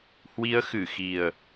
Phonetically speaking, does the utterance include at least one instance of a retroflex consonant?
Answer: no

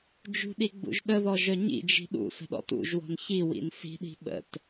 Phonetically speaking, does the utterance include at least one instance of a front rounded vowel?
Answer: yes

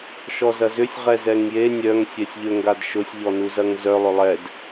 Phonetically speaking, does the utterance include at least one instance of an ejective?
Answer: no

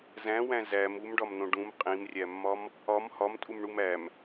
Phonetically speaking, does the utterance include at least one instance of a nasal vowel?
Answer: yes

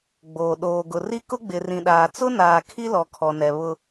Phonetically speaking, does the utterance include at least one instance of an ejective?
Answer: no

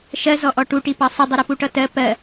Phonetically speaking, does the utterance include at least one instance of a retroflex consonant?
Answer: yes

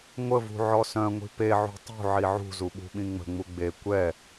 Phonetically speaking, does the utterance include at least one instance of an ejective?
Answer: no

